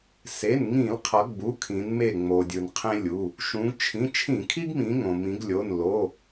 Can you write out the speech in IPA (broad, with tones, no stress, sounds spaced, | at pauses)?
s e˩˧˩ n ŋ ĩ˧˩˧ l qʰ ʌ˩˧ ɡ͡b u˩˧˩ kʰ ĩ˩˧ n m e˧˩ ŋ͡m o˩ dʲ ɯ˩ n qʰ ẽ˦ lʲ u˩˧˩ | ʃ ũ˩˧ ɡ t͡ʃʰ ĩ˩˧˩ t͡ʃʰ ĩ˧˩˧ kʰ i˦ ɡ m ĩ˩˧ ŋ õ˩ m ĩ˩˧ ɡ lʲ o˩˧˩ n l o˩˧˩